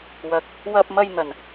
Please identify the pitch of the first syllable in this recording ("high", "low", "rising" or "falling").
rising